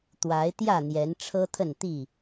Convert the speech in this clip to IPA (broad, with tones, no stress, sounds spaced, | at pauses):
t̪ w a˨˦ ɪ̯ t̪ j ä˥˨ n̪ j ɛ˨˦ n ʈ͡ʂʰ ɤ˦ t̪ʰ ə˥˨ n t̪ i˥˨